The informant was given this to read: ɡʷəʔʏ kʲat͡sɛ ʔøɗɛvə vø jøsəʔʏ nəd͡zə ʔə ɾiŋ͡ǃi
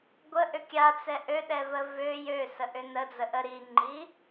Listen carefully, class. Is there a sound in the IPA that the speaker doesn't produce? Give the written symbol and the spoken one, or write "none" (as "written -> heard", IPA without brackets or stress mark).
none